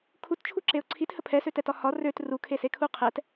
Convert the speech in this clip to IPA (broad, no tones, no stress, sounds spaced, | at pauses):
kʰ u t t͡ʃʰ u ǁ e ʊ̯ ǀʰ i t h ə pʰ ɛ s ø t ɛ t ɒ h ɒ r ø t r u kʰ e s e kʰ u qʰ ɛ t